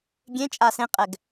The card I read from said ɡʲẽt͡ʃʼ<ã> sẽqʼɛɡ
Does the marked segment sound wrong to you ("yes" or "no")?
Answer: yes